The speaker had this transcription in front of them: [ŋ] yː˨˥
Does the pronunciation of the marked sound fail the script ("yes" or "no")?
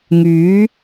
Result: no